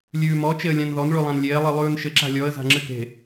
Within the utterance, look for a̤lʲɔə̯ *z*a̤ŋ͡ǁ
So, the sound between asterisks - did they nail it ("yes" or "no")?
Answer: yes